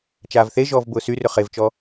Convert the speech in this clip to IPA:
t͡ʃ aː v θ e ʒ ɔː v b ʊː s y r ʏ χ e v t͡ʃ ɔ

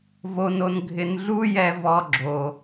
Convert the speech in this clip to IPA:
v o˧ n o˧ n ɡʱ ɪ˧ n ɮ u˥ j ɛ˧ v ɔ˧ ɡ͡ǁ o˩

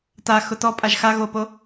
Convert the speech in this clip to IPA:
t a x ʊ t ɔ pʼ a ʒ x a ɣ o p o

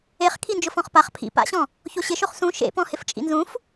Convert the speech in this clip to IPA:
e χ kʰ i n d͡ʒ ʊ f ɔ̃ χ p a χ pʰ ḭ p a̰ ɕ ɔ̃ | ç o ɕ ɪ ʃ o χ s ũ ʃ ḛ p ɔ̃ h ɪ f t͡ʃʼ ḭ n z ũ f

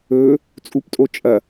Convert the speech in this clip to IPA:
ɵ | t͡sʼ u p tʼ o t͡ʃʼ ɐ

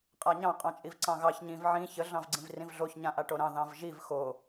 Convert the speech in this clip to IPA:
qʼ a ɲ ɑ̃ qʼ ɑ̃ t͡ʃʼ i v ǀ ɑ̃ ɣ ɑ ç ɲ ĩ v ʕ ĩ ç ə ɮ ɑ̃ v ɡ͡ǀ ĩ v r ĩ v ɮ o ç ɲ ã ʔ a ʈ o ɾ ɑ̃ ð ɑ̃ v ʒ i v x o

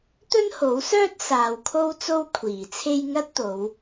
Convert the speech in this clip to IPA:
t̪ ɵ˥ n h o˨˥ w s œː˥ t̚ s aː˨ w kʰ o˥ w t͡s o˥ w kʷʰ iː˨˩ t͡sʰ e˥ j ŋ ɐ˥ t̚ t̪ o˨˧ w

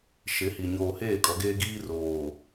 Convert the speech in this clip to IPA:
ʃ ɪ˨˦ h i˨ ɲ oː˨ h eː˦˨ kʼ ɔ˨˦ ɡ eː˦ ɡ iː˦ r oː˨

